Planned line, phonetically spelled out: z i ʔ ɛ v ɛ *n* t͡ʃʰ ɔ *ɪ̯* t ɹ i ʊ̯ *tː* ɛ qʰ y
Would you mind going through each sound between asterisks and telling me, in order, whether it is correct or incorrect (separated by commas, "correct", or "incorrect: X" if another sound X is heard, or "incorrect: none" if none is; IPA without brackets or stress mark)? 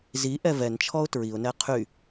correct, incorrect: ʊ̯, incorrect: n